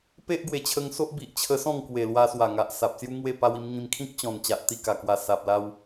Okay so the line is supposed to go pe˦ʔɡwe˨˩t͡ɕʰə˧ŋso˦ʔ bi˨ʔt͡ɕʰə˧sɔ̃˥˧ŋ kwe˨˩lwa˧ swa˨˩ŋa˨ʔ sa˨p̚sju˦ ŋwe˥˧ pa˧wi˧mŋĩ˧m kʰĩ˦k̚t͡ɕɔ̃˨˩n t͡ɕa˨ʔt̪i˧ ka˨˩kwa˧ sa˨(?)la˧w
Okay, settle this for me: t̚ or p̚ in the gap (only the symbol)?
p̚